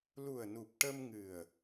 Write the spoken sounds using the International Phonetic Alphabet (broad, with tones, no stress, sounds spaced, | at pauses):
l u˨˩ ə̯ n u˨˩ p̚ ʈ ə˧ m ŋ ɨ˨˩ ə̯